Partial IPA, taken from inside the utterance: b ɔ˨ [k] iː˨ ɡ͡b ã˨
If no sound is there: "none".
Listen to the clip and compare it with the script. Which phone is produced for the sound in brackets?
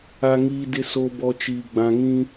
t͡ʃ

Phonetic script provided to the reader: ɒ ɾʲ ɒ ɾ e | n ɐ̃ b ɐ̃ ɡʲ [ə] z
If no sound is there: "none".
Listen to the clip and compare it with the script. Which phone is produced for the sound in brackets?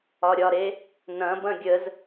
ə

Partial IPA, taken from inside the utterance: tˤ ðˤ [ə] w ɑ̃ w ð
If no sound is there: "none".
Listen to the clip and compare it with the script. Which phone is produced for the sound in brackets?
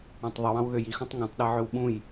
ɯ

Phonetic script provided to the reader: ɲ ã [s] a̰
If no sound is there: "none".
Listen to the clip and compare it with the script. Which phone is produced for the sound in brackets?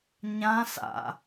s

